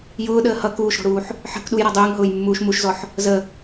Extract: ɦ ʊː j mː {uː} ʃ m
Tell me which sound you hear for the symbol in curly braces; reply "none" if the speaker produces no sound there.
uː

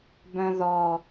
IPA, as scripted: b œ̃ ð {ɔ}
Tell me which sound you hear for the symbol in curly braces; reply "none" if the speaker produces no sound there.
ɔ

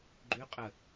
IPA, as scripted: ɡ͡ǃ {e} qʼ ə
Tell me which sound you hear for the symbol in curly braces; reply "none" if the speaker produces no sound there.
y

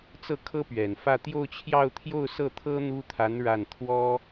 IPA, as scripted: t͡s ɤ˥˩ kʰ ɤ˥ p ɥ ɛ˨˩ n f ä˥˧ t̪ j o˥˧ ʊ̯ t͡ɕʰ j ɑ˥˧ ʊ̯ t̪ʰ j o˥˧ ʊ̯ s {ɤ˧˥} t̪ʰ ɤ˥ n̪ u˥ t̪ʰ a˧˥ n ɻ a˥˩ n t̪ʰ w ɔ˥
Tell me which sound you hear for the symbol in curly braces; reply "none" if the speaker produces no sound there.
ɤ˥˩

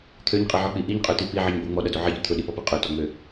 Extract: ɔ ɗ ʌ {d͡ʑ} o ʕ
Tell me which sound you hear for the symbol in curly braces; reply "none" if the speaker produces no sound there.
d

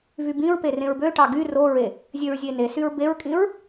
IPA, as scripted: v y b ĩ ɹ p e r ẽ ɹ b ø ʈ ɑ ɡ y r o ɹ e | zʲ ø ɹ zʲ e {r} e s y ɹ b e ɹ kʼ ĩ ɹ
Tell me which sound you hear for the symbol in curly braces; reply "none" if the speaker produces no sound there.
n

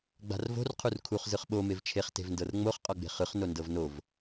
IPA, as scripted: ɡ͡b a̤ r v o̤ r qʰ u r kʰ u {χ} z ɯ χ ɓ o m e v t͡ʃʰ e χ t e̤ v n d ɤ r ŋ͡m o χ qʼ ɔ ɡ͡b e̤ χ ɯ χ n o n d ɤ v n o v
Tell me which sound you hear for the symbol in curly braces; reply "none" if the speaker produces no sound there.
χ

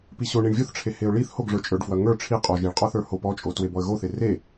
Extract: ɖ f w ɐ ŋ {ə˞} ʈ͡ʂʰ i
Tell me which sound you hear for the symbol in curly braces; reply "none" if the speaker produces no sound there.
ə˞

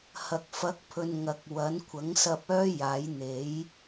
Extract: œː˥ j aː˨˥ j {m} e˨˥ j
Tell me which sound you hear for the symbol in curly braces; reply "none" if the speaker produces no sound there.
n̪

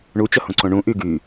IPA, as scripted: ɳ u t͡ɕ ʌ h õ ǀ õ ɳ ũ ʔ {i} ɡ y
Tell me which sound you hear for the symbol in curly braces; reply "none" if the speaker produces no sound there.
y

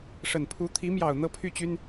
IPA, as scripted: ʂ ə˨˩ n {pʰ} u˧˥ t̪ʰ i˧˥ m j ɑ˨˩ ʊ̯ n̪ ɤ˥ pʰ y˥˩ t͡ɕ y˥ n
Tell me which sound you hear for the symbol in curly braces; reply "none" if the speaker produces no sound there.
pʰ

